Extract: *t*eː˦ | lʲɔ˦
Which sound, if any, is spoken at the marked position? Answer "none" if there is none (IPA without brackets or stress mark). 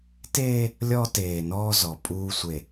t